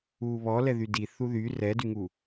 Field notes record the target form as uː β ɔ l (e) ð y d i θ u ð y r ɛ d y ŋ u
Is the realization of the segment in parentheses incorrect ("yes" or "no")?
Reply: yes